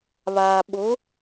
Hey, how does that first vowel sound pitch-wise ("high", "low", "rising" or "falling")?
low